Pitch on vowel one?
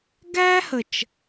high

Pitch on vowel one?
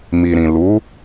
low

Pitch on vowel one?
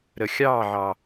low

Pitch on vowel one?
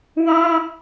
high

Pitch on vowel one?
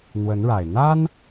rising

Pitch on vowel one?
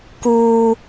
high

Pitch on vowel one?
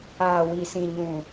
low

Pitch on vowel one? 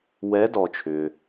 rising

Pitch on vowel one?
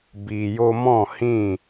low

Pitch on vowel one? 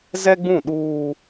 high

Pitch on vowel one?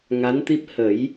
rising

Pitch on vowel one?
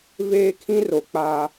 high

